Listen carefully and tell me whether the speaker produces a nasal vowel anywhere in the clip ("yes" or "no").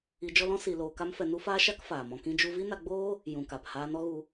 yes